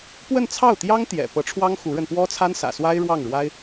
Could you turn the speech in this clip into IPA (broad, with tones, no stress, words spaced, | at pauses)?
pwə˥˧nt͡sʰɑ˥˩ʊ̯t̪jɑ˥ŋ t̪jɛ̰˨˩ pɤ˧˥ʈ͡ʂʰwɑ˥ŋ xu˧˥ɻə˧n pwɔ˥t͡sʰa˥nsä̰˨˩swa˥ɪ̯ ɻwɑ˥˩ŋɻwa˥ɪ̯